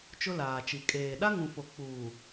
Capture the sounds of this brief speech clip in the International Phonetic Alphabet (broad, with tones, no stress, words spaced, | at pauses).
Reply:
t͡ʃʊ˦laː˨t͡ʃi˨ kʼeː˨ ɗa˦ŋũ˨fo˨ k͡puː˨